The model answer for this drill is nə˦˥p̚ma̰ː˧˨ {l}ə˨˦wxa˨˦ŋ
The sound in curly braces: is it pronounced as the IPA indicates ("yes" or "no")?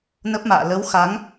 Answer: yes